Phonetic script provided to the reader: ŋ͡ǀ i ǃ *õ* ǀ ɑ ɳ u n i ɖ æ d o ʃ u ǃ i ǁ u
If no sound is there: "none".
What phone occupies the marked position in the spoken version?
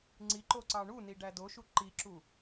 o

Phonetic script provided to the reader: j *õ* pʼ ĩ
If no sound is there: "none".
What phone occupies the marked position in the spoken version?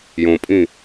õ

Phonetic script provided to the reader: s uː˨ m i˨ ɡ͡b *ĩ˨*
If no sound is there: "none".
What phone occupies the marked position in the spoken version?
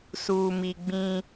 ĩ˦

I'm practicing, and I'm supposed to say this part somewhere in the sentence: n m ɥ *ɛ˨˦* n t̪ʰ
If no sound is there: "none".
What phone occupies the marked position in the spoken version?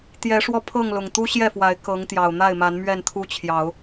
ɛ˥˨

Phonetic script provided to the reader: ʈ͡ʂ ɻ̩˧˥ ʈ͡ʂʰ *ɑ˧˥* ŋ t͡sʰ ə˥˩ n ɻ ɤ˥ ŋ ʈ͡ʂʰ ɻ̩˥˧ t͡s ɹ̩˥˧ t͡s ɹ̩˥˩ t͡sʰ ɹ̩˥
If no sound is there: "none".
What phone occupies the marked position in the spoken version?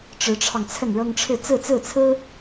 ɑ˧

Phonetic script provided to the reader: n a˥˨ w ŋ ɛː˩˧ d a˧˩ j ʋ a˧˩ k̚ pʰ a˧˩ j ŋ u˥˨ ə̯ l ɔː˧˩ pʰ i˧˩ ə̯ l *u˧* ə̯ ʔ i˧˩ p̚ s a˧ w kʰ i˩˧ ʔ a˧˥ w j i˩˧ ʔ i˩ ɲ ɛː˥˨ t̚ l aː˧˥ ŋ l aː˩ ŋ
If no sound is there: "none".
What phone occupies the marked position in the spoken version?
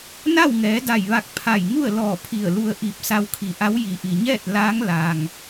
u˧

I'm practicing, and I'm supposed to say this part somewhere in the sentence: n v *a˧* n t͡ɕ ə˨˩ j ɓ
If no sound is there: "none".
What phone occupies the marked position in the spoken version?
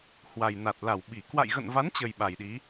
a˨˦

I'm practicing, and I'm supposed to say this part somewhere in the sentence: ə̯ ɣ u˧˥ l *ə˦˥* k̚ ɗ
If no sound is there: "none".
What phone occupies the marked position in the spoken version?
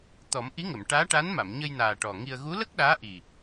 ə˦˥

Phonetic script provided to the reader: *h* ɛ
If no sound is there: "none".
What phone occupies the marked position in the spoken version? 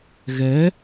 ɣ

